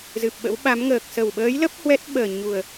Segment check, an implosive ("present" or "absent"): present